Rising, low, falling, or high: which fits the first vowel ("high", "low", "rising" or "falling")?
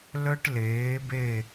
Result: high